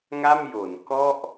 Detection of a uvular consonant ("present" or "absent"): absent